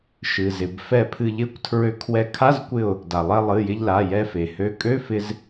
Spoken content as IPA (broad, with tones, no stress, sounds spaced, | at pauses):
ʃ ɨ˩ z ɪ˩ b f ɛ˧˩ pʰ ɨ˧˩ ʎ ɪ˧˥˧ kʷ tʰ ɹ ø˧ kʰ w ɛ˧˩ kʰ a˧˥˧ z kʷ ɪ˧˩ ʊ̯ | d a˩ lˠ ɛ˧ lˠ ɨ˩˧˩ j ɪ˧ ʎ l a˩˧˩ j ɛ˧ f e˩ h ø˧ kʼ ø˧˥˧ f ɪ˧ z